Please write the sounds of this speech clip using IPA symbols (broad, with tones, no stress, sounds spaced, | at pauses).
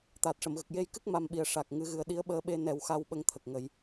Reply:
t̪ aː˨˩ t̚ ʂ ə˨˩˨ m ɣ ə˨˩ k̚ j e˧ j k ɨ˦˥ k̚ m a˧˥ m ɓ i˨˩ ə̯ ʂ a˨˩ k̚ ŋ ɨ˨˩˦ ɣ ɨ˨˩ ə̯ ɗ i˧˥ ə̯ ɓ əː˧ ɓ e˧ n ɛ˨˩˦ w x a˧ w ɓ ə˧˥ ŋ t̪ʰ ə˨˩ k̚ ŋ ə˨˩˦ j